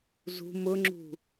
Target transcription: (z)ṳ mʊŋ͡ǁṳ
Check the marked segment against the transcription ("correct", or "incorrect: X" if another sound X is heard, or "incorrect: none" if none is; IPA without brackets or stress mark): correct